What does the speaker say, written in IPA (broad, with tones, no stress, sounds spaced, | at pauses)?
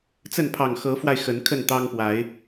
t͡s ə˥˨ n pʰ ɑ˨˩ ŋ x ɤ˨˦ f w a˧ ɪ̯ x ə˨˦ n kʰ ə˥˨ n t̪ ɑ˦ ŋ p w a˨˦ ɪ̯